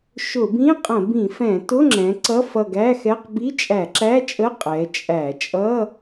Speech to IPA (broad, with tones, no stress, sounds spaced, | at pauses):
ʃ ʊ˧˩˧ b ĩ˧˥˧ qʼ ə̃˧˩˧ b ĩ˧˩˧ f ɛ̃˧˩˧ t ʊ˧˥˧ ŋ͡ǁ ɛ̃˩˧ ǀ ʌ˧˥˧ f ʌ˧˩ ɡ æ˧˥˧ x ɛ˧˥˧ q b i˧˥˧ t͡ʃʼ æ˧˩˧ ǁ æ˧˥˧ t͡ʃʼ ə˧˥˧ qʼ ɛ˩˧ t͡ʃʼ æ˧˩˧ t͡ʃʼ ʌ˧˥˧